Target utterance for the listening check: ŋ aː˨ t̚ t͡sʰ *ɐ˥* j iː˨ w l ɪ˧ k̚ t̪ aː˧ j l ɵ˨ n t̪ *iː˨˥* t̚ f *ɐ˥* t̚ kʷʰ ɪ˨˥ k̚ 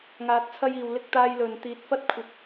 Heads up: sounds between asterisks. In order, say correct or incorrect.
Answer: incorrect: ɐ˧, correct, correct

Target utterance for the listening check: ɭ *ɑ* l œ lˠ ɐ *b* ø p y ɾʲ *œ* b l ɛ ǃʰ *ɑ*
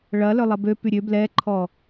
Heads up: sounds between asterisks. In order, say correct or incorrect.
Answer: incorrect: ɐ, correct, incorrect: ø, incorrect: ɔ

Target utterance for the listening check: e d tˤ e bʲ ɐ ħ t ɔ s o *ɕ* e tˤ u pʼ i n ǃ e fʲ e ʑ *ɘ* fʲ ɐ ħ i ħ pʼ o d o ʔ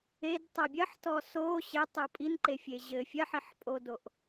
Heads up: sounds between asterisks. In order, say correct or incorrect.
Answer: correct, correct

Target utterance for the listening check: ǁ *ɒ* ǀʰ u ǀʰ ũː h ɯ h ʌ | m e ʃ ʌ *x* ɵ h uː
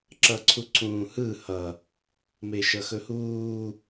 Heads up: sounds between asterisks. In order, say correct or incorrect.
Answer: incorrect: ʌ, correct

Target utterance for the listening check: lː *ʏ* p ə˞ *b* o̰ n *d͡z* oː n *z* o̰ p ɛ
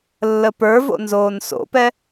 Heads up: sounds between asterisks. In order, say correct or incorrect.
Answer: incorrect: ə, incorrect: v, incorrect: z, incorrect: s

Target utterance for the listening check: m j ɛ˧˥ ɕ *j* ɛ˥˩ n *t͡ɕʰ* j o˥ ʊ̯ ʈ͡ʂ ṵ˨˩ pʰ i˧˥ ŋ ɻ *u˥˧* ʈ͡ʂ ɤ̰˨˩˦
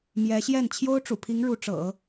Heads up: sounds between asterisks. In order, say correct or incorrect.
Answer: correct, correct, incorrect: u˧˥

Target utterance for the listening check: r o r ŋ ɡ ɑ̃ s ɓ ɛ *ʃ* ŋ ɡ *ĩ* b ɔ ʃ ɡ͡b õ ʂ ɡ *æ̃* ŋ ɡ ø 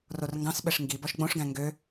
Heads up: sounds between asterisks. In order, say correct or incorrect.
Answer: incorrect: ʂ, incorrect: i, correct

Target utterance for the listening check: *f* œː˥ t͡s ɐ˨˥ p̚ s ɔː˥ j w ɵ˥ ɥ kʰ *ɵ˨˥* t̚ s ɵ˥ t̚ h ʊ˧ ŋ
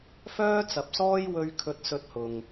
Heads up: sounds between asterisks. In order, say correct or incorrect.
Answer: correct, incorrect: ɵ˥

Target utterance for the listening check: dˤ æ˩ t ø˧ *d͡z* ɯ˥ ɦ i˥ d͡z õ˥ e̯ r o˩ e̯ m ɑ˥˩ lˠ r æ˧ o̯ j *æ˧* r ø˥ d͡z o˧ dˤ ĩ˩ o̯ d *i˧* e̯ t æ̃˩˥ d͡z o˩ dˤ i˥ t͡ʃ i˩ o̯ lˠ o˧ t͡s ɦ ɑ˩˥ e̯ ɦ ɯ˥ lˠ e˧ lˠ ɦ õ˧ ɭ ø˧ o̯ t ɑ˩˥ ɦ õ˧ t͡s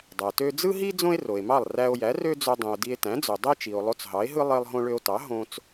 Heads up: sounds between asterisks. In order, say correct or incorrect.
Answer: correct, incorrect: æ˩˥, correct

